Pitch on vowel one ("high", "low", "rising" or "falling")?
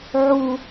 low